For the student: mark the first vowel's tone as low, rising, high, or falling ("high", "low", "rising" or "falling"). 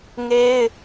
high